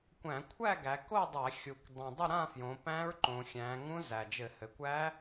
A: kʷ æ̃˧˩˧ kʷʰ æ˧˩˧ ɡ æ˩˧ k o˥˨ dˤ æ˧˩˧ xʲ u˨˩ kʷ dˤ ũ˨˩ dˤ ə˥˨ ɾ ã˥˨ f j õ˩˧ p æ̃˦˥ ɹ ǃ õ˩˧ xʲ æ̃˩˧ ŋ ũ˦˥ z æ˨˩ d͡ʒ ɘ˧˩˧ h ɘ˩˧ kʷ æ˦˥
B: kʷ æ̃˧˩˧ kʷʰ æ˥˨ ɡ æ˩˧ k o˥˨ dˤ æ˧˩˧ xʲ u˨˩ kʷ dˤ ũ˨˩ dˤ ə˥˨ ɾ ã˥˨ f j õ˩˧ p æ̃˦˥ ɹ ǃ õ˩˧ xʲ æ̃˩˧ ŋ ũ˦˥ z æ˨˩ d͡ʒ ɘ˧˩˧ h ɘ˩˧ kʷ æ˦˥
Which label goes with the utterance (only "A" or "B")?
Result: B